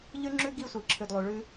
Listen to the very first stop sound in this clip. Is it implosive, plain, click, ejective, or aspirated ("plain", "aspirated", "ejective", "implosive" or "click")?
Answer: click